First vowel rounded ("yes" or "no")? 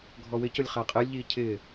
yes